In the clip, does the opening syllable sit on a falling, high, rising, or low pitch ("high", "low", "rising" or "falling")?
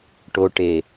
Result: low